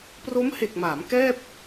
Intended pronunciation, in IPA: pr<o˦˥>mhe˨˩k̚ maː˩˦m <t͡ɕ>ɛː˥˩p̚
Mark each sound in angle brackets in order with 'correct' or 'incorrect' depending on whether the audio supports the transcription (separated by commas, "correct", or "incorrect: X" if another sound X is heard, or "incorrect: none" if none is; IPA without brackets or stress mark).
correct, incorrect: k